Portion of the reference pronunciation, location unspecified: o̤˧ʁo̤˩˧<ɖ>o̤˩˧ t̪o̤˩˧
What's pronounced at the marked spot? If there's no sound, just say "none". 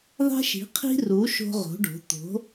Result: ɖ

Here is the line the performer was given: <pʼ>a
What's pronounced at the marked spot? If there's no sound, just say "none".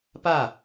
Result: p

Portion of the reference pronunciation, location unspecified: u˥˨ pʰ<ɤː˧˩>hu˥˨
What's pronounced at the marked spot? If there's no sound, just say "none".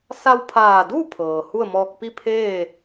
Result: ɤː˩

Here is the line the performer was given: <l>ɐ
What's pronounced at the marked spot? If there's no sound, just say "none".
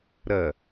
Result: ɾ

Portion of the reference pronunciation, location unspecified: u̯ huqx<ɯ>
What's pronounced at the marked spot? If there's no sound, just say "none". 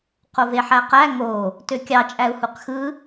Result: ɯ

